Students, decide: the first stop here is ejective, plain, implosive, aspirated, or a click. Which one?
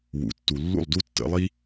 plain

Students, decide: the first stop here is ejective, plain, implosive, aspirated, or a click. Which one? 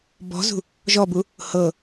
plain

